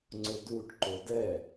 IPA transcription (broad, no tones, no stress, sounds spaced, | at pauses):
ŋ͡ǀ ʊ d u ʈ ǃ o d ɛ